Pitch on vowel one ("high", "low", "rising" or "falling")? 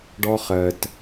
high